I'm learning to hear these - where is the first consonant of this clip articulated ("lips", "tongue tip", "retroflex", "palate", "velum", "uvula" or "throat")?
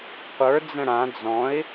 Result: uvula